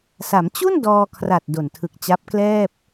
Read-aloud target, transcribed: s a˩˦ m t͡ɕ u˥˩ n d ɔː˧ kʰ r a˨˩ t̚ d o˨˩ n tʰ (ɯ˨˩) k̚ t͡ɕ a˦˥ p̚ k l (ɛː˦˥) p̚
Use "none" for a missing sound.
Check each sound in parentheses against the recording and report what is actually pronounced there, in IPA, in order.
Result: ɯ˨˩, ɛː˥˩

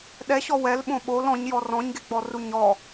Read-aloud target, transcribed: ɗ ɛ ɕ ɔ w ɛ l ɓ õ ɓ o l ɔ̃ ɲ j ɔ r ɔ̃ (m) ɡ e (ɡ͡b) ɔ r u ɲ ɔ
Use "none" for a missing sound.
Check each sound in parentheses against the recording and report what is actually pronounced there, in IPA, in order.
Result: ɲ, ɡ͡b

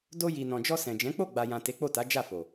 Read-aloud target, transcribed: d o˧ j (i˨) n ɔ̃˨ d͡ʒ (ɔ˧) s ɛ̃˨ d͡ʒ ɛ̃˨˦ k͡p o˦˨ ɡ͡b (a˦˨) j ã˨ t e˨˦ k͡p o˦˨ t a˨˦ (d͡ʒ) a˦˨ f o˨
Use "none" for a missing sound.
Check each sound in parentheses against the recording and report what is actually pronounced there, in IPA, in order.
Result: i˨, ɔ˧, a˨, d͡ʒ

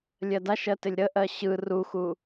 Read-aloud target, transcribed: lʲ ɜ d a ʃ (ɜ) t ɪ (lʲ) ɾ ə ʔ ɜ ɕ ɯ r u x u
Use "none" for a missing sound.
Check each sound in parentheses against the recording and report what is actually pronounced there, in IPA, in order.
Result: ɜ, lʲ

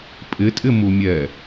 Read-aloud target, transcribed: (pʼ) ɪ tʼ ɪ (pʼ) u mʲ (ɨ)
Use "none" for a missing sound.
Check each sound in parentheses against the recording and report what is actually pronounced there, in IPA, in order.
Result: pʼ, m, ɛ

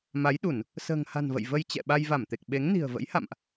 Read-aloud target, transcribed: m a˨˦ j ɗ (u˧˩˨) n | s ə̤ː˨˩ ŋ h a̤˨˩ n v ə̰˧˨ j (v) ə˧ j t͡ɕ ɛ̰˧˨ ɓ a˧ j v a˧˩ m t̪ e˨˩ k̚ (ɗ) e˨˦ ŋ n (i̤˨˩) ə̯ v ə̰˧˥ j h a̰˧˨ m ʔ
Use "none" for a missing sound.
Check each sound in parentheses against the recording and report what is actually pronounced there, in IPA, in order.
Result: u˧˩˨, v, ɓ, i̤˨˩

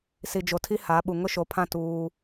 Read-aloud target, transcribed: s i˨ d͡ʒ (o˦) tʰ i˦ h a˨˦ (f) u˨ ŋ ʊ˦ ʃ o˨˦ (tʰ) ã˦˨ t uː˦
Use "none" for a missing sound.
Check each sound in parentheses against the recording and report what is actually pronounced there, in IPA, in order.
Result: o˨, ɓ, pʰ

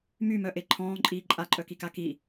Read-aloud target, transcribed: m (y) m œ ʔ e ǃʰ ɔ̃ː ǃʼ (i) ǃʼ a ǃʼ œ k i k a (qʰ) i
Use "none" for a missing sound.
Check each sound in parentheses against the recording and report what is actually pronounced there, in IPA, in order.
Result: y, iː, k

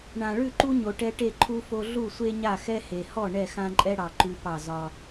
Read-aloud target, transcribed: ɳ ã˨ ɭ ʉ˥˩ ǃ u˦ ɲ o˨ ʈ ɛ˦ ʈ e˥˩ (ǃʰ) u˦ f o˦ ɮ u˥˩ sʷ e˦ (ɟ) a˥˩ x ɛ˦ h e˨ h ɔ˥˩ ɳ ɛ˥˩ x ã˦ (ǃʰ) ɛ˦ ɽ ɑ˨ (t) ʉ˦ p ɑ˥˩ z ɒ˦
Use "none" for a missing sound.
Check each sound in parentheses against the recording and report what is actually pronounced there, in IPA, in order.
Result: ǃʰ, ɲ, ǃʼ, ǃ

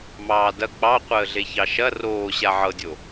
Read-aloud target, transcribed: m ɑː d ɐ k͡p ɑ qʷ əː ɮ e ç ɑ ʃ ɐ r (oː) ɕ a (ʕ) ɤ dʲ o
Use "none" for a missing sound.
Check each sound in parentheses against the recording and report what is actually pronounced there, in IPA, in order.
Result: oː, ʕ

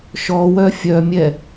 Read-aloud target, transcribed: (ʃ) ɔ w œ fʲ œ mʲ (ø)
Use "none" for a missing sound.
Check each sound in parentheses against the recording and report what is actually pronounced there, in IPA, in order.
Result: ʃ, ɛ

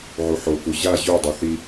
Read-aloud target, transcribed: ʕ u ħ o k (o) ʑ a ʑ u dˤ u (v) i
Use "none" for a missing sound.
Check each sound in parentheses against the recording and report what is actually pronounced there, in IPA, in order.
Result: u, θ

